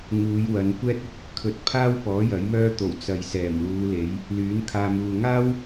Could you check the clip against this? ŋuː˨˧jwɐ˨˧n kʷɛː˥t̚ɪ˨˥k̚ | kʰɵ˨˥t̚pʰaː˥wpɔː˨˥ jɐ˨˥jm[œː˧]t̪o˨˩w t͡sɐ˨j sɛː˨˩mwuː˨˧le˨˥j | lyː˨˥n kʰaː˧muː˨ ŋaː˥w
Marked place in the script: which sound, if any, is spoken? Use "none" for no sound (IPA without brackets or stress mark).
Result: œː˥